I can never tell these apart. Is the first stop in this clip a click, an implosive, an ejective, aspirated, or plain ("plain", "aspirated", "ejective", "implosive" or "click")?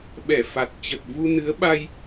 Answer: implosive